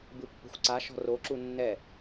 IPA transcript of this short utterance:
bɯpːo̤xʷǀaʃɔ̤ roǁu nːɛ

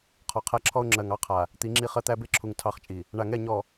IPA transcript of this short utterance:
qʰɔ˨qʰæ˦ǁʰɔ˦ʊ̯ ŋ͡ǁɜ˨ŋɑ˦qʰa˨ | t̪i˨˦ŋ͡ǁi˦˨χɜ˦t̪æ˦ be˦ǁʰu˨ŋ tʰɑ˦χt͡ʃʼi˨ | ɳa˨ŋɛ˦˨ɲɔ˨

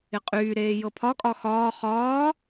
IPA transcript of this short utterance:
ɪqʼyːɾeː jɤpʰɒkʼɒ xɒː χɒː

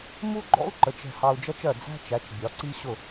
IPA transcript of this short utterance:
mu˥ɡ͡ǃɔ̰˥u̯ ǃə˩˥t͡ʃ ɛ̤˧hɑ˧u̯d͡ʒʌ˥t͡ʃɜ˥˩ d͡zæ̤˥t͡ʃæ˩˥t͡ʃ bʲɒ˩˥ǀi˥ɕʊ˥˩

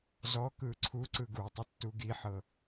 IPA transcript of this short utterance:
zɔ kɯǀʰuǀɯ ɡu tˤutːuɡiħɤ

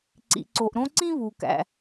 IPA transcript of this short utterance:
ǀḭ˩ǀo˩ʔɾõ˥ ǀĩ˥βu˩ kæ̰˩

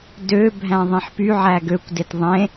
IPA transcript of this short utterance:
døbʱæ̃ ðˤĩħpyʕæ ɡøkʷdet ðˤẽ

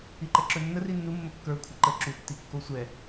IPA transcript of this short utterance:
iǃɛǁɵnːə rinːu mːəkːə˞ kʷʰəǃə ǁu tːikːosʷɛ

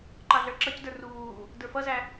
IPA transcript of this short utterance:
ǃɑɮə˞ǁʌcdə˞ ruː | də˞fʌzæ

